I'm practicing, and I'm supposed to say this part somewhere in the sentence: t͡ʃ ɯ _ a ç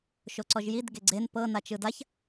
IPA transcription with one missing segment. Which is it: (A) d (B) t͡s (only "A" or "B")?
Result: A